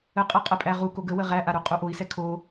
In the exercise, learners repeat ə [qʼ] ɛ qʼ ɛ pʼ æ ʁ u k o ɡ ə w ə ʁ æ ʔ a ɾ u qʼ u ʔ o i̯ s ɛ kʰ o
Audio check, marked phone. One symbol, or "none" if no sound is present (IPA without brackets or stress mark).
qʼ